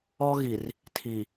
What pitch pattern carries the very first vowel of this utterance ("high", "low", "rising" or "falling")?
high